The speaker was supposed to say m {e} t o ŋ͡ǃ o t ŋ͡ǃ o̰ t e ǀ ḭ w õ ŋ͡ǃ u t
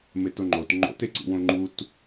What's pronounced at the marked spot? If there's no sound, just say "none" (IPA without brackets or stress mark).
e